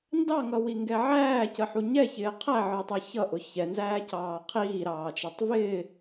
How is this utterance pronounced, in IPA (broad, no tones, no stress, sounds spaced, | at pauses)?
n d ɑ ŋ ʌ w i ŋ ɡ ɛ ʕ æː c ə ħ u ɲ ɛ ç ɪː qʰ æ ʕ ə˞ tˤ ə˞ ç ʌ ʔ ʊ ç ɛ n z æː c ɑː qʰ iː ɾ ɑː t͡ʃ ɑ tˤ v ɪː